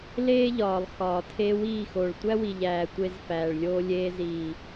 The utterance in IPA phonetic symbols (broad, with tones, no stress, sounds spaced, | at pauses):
l eː˦ ʎ ɒː˨ lˠ x ɒː˨ tʰ e˧ w iː˦˨ x o˨ ɭ tʷ æ˦ w i˨ ʎ æː˨ tʷ e˧ z f æː˨ ɭ lʲ oː˧ lʲ eː˧ z iː˨